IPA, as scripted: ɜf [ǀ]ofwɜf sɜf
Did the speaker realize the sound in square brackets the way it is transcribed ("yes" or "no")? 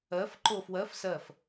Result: no